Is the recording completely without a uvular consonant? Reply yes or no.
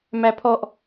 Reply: yes